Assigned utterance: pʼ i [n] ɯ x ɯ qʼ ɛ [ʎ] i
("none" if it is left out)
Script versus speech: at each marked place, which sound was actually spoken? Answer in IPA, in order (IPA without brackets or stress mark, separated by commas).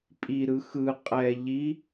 ɾ, ʎ